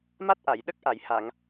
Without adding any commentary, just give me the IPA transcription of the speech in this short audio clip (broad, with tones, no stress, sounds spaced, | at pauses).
m a˦˥ t̚ ʔ a˨˩˨ j ɗ ə˦˥ k̚ ʔ a˨˩˨ j h a˨˩˨ ŋ